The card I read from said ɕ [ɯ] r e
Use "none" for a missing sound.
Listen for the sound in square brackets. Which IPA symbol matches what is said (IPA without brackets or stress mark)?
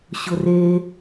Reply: ʊ